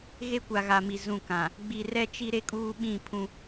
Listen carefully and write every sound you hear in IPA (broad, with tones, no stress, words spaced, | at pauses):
ɣe˦kʷa˨ɣa˨mi˨ zũ˦˨kã˨ | ɡ͡bi˨rɛ˦t͡ʃi˦ ɾe˦kʼuː˦ɓĩ˦˨ pʰũ˦